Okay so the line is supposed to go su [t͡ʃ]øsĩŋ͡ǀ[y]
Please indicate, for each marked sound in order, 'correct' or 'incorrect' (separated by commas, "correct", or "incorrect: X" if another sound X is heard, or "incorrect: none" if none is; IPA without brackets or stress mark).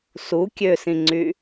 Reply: incorrect: kʲ, correct